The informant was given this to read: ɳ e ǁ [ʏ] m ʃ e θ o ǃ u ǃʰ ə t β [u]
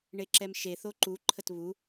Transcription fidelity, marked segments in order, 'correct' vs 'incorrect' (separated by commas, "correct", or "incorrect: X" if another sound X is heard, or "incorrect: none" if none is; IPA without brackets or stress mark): incorrect: ɛ, correct